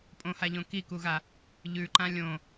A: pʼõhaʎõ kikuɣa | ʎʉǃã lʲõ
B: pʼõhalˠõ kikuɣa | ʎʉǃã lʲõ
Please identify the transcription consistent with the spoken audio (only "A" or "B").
A